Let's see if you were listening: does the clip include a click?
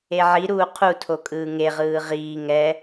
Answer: no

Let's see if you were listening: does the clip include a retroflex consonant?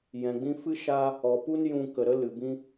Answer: no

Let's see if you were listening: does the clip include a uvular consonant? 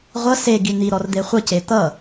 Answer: yes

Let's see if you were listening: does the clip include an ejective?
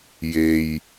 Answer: no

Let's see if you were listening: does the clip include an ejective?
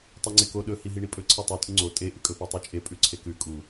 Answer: yes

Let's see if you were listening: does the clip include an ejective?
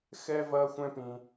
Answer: no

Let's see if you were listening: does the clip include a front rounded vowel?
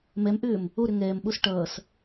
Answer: yes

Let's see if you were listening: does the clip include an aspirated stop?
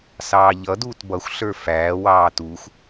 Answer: no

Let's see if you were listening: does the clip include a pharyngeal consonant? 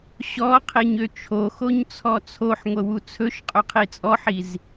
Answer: yes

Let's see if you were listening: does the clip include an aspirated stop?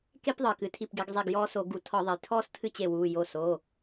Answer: yes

